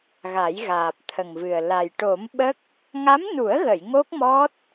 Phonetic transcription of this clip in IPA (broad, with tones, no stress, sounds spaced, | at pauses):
ɣ a˨˩˦ j ɣ aː˨˩ p̚ t̪ʰ ə˨˩ ŋ v ɨ˨˩ ə̯ l a˨˩ j ʈ o˨˩˦ m ɓ ə˦˥ k̚ | ŋ a˧˥ m n u˨˩˦ ə̯ ɣ ə˨˩˨ j ŋ o˦˥ k̚ m ɔ˦˥ t̚